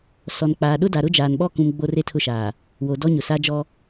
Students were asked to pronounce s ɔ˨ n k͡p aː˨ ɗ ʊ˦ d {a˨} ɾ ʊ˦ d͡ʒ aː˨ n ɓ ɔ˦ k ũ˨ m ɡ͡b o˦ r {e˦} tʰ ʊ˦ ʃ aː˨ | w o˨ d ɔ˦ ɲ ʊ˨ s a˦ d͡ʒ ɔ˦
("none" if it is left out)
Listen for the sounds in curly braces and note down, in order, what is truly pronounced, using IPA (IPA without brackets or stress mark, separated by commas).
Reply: a˨, e˦